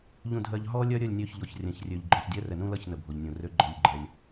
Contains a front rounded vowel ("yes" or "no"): yes